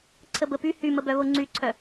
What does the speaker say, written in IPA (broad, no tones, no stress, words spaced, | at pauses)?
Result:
ǀʰəbəpy hyməbœβo ŋ͡ǀyǀʰœ